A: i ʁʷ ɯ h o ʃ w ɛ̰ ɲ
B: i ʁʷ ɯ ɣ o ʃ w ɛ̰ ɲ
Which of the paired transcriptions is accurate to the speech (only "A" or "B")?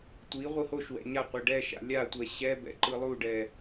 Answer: A